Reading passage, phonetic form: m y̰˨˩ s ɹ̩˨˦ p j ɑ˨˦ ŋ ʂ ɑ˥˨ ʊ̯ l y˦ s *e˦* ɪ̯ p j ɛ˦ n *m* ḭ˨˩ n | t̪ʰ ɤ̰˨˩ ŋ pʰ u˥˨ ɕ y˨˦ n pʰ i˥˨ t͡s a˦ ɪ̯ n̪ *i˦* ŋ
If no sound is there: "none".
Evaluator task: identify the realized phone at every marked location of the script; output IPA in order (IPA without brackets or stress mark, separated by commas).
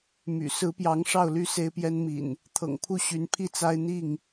e˦, m, i˥˨